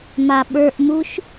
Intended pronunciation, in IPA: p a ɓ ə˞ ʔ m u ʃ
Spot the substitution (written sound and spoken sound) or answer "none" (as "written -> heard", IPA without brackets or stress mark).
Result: p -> m